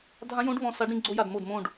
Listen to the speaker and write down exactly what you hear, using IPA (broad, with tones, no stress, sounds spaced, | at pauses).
dʱ ã˦˥ j õ˦˥ ɖ β ɔ̃˧˩ s a˦˥ ɖ ɾ ĩ˦˥ ɡ͡ǀ o˦˥ j a˧˩ d m o˧˩ d m õ˧˩ ɖ